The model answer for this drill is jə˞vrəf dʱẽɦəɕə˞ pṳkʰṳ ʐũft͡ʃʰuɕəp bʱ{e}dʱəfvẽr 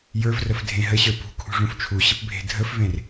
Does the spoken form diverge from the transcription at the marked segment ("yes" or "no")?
yes